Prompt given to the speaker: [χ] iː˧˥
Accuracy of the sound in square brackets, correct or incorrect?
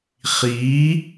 correct